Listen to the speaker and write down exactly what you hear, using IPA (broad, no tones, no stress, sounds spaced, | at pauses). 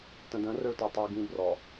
t ə̃ d ə̃ r ɵ ɭ t ɔ tˤ i ɡ ĩ b r ɔ